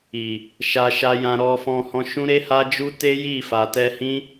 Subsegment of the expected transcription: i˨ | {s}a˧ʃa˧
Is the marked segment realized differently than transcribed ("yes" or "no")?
yes